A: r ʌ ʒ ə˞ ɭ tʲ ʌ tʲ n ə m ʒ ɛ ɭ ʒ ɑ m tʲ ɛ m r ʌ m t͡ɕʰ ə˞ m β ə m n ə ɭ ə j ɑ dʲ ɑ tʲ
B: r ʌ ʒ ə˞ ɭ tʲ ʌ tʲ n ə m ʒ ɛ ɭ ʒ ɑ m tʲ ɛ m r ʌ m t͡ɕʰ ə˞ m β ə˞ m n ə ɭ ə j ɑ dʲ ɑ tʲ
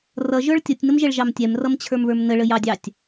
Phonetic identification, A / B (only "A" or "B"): B